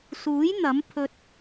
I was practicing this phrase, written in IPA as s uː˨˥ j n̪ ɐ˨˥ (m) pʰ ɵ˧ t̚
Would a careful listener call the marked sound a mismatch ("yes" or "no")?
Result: no